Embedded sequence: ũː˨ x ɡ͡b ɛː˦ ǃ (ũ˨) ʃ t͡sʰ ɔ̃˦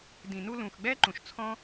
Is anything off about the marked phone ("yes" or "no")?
no